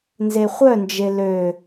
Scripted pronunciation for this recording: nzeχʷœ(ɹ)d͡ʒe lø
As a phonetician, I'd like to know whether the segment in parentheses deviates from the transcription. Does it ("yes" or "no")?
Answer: yes